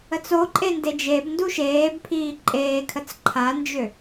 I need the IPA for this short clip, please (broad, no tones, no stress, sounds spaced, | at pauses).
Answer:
ə t͡s o ǃʼ e n d e d͡ʒ e b n d u ʃ eː b pʰ iː ǃʼ eː kʰ ə t͡s ǃʰ a n d͡ʒ ø